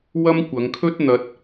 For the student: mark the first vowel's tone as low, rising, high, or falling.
high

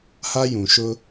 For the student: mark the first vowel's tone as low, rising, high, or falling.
high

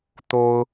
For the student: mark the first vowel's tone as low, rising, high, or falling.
high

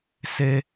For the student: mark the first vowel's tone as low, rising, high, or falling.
high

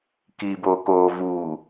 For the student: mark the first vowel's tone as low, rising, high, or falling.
low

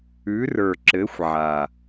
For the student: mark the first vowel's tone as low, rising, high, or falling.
rising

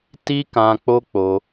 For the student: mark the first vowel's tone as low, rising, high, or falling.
high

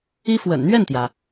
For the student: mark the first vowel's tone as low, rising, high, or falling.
high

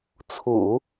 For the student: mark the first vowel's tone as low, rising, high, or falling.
low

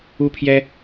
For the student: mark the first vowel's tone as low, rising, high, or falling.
high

